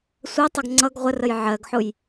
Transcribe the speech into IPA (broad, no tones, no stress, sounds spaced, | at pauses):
sʷ ɜ tˤ ʌ ɡ ŋ͡ǀ ʌ ɡ ʁʷ ə r ə j ʕ ɜ ɡ ħ ʊ j